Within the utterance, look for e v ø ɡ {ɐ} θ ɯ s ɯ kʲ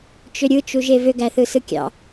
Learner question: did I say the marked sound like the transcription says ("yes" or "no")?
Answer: no